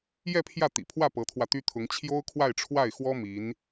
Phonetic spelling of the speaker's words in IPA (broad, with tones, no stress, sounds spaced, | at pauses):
j ɛ˥˧ pʰ j ä˥˩ t̪ ḭ˨˩ pʰ w ä˥˩ p ɤ˧˥ t̪ʰ w ä˧ t̪ y˥ t̪ʰ ʊ˧˥ ŋ t͡ɕʰ j o˥ ʊ̯ kʰ w a˥˧ ɪ̯ ʈ͡ʂʰ w a˥˩ ɪ̯ x w ɔ˥ m i˧˥ n